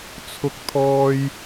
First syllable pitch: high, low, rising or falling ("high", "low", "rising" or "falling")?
high